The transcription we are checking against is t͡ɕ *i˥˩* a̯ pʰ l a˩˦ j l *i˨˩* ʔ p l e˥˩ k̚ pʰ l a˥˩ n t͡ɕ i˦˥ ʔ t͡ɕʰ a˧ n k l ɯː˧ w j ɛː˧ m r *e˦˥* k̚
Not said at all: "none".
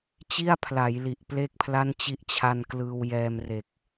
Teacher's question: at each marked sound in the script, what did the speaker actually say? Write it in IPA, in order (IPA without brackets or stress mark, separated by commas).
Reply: i˥˩, i˨˩, e˨˩